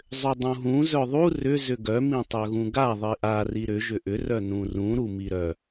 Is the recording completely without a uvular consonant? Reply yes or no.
yes